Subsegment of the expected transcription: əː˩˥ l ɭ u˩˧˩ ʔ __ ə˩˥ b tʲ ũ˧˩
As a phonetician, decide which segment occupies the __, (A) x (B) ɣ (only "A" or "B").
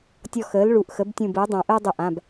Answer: A